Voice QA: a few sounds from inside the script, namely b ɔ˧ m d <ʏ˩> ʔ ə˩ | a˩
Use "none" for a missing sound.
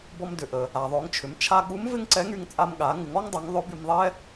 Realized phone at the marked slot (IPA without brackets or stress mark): ʏ˩